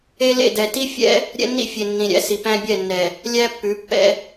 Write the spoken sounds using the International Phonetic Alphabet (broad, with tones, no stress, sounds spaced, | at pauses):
e˦ l ḛ˦˨ d ɛ˨ t i˦ fʲ ɛ̰˦ | ɾʲ ɛ̰˦ nː ḭ˦ fʲ e˨ nː ĩ˨ ɾʲ æ̰˦ s i˨ p æ̃˦ bʲ ɛ˦˨ nː ɛ˨ | lʲ æ˦ pː ʉ˨˦ pː ɛ̰˦